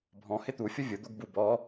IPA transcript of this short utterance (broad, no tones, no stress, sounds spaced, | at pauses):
bʱ ɔ̃ h ɪ t̪ u fʲ ʊ vʲ ʊ d̪ o ɡ b u b ɔ